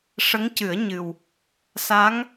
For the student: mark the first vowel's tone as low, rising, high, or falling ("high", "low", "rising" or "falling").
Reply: rising